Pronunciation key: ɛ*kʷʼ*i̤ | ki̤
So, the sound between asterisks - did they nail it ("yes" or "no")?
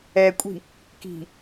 yes